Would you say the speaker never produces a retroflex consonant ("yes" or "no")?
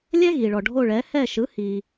no